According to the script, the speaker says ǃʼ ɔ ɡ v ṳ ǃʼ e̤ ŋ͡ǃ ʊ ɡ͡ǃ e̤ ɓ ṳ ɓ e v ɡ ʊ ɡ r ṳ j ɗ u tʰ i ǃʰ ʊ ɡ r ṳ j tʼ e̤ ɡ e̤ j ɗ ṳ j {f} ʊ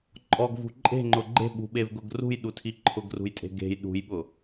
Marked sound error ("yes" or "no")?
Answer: yes